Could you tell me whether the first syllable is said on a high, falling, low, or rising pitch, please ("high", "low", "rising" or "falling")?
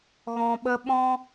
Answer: low